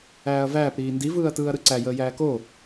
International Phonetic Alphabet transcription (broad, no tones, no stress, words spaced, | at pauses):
æːɐ̯væːp ɾiːndiv ɯːɐ̯tɯːɐ̯ɾɯǀæ jəːjæːko